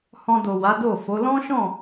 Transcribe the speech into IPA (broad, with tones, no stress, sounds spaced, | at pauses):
h ɔ̃˧ d o˨ w a˨˦ d o˦˨ f o˨˦ l ɔ̃˦ ʃ ɔ̃˦˨